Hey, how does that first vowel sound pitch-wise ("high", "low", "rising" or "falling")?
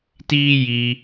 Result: high